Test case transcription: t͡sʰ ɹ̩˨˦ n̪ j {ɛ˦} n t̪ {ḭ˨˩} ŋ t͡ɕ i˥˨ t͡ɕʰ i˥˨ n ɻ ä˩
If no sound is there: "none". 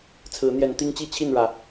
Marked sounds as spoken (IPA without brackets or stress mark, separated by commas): ɛ˨˦, i˦